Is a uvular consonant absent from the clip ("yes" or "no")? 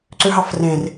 yes